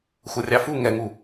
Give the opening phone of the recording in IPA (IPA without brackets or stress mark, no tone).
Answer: xʷ